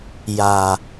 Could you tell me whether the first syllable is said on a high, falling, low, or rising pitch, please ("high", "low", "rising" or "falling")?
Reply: low